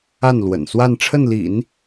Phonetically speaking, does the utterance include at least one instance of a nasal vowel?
no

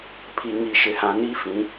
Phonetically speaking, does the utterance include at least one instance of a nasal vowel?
yes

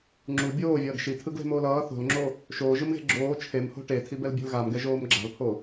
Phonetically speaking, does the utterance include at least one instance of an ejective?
no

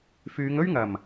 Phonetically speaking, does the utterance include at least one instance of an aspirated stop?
no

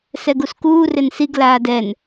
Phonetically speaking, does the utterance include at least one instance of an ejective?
no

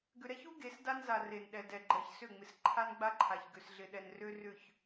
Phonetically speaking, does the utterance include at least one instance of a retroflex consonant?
no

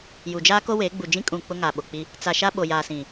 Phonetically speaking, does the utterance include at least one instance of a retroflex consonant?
no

